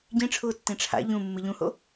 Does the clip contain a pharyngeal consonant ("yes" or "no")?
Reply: no